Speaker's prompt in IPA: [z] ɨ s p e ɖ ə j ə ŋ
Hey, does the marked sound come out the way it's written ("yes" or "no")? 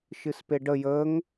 no